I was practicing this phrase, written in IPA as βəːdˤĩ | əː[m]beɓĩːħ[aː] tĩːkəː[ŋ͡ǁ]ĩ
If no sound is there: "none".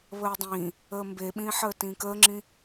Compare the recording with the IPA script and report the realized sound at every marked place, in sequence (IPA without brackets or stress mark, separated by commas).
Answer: m, əː, ŋ͡ǁ